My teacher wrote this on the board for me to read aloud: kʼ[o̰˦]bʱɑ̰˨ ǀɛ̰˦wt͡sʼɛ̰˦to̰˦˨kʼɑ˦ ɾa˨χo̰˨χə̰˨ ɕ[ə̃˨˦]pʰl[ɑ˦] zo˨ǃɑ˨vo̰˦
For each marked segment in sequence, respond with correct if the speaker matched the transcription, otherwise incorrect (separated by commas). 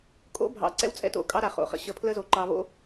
correct, incorrect, incorrect